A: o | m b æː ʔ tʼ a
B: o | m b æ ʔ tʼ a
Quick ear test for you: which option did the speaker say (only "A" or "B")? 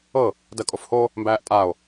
A